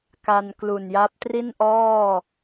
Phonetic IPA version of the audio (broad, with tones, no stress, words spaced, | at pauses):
ka˧nklu˨˩nja˦˥p̚ tri˥˩nʔɔː˥˩